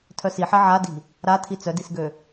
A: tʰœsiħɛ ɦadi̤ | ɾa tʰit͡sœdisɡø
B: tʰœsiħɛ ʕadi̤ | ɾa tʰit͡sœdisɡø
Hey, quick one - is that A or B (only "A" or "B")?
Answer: B